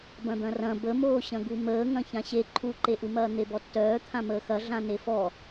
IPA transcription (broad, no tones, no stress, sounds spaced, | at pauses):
b ɐ̃ d̪ ɐ̃ r ɐ̃ b ə m oː ɕ ɐ̃ ɡ u m əː ŋ ɐ̃ ç ã ɕ e ǃʰ u ǃ e ʔ u m ɐː n̪ e b ɔ tː œː t̪ʰ ã m əː x ɐ ɮ ã n e f ɔ